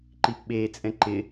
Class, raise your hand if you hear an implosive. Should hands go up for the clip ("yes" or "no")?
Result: yes